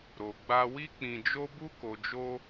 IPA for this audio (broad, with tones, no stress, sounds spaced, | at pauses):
ɾ o˨ ɡ͡b a˧ w i˦ k͡p ĩ˧ d͡ʒ o˦ b u˧ k o˨ d͡ʒ o˧